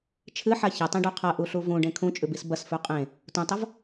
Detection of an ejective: present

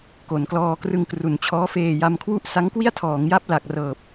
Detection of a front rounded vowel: absent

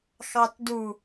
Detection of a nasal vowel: absent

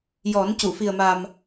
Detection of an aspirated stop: absent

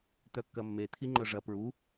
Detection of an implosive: absent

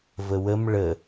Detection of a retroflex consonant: present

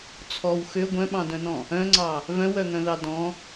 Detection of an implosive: present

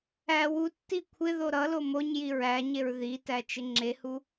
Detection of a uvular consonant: absent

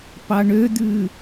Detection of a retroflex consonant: present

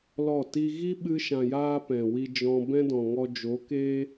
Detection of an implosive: present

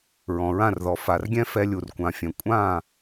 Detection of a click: absent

